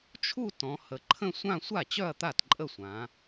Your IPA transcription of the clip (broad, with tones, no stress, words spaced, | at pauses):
t͡ʃʰu˥˧ tɔ̃˩˧hə˩˧ǃʰə̃˥˧sʷã˥˧ sʷa˥˩ t͡ɕœ˥˧ɐ̯t̪a˥˩tǃʼə˥˩sʷã˩˧